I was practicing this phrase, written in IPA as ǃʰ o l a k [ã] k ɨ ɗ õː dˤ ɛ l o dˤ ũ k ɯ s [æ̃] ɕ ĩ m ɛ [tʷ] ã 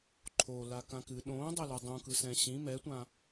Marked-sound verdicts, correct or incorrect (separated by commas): correct, incorrect, correct